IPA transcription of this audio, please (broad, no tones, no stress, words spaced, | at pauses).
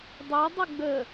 dˤɛ dˤəɡ͡bə